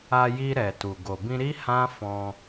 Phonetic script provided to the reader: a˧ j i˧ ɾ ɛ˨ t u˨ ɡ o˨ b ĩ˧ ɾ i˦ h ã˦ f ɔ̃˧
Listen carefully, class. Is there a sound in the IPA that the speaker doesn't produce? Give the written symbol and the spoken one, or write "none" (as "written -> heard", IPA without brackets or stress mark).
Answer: none